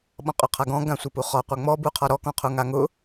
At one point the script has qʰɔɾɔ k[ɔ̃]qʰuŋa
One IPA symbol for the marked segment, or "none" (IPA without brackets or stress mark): ɔ̃